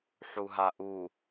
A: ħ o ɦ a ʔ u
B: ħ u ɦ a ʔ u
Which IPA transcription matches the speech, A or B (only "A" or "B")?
B